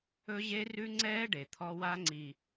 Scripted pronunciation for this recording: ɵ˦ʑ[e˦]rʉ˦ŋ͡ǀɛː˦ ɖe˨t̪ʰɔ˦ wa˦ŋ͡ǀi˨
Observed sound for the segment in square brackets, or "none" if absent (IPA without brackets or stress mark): e˦